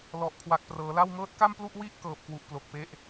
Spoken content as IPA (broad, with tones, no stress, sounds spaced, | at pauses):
l ɔ˨˩ ʔ kʰ w a˨˩ k̚ p r ɤː˩˦ l a˥˩ w ŋ ɤː˦˥ t̚ k a˥˩ m p l u˥˩ ʔ w i˥˩ ʔ k ɤː˨˩ p̚ k w u˨˩ ʔ p l o˨˩ k̚ p e˦˥ ʔ